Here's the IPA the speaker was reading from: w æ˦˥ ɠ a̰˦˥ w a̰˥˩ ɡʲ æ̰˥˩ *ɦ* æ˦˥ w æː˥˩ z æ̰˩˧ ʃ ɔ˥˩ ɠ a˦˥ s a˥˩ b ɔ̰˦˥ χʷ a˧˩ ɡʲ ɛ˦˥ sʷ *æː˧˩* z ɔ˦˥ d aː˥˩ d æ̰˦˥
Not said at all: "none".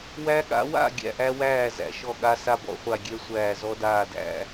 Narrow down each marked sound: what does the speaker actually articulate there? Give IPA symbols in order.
ʔ, æː˧˩

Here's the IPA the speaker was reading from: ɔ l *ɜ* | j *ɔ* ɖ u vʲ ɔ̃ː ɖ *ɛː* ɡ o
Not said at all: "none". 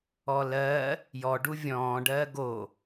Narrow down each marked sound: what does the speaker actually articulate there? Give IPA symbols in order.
ɜ, ɔ, ɜː

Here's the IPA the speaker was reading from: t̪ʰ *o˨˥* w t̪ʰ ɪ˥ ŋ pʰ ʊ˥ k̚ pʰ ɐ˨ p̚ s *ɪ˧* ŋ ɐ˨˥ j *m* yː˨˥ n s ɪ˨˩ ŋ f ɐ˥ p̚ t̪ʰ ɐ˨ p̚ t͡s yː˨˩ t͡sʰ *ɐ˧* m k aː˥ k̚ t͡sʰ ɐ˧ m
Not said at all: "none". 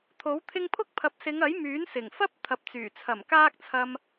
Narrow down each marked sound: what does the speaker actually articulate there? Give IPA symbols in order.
o˨˥, ɪ˨˧, m, ɐ˨˩

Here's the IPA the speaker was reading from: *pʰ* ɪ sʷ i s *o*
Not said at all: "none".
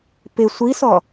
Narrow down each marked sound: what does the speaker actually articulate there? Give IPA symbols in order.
p, ɔ

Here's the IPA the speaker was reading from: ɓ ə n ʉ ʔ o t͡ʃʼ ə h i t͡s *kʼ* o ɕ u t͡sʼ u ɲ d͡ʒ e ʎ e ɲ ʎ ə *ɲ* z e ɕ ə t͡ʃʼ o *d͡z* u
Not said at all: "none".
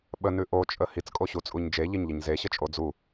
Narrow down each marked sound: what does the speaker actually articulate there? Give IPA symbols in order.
kʼ, ɲ, d͡z

